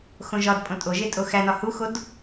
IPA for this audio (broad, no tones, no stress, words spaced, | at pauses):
xõʒɒdpʼõ tʼoʒe tʼoxænɒ huxod